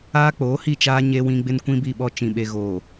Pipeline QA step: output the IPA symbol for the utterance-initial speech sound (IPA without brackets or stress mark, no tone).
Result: aː